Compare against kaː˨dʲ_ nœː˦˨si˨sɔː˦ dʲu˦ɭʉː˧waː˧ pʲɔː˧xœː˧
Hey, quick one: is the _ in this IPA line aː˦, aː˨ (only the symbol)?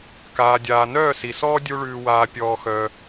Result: aː˨